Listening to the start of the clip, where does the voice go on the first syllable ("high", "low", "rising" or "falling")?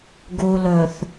low